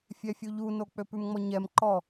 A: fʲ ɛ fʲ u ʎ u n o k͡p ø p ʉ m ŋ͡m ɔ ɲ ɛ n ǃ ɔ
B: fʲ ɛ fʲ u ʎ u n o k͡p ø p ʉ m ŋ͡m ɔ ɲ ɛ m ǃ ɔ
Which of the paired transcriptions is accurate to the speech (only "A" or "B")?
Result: B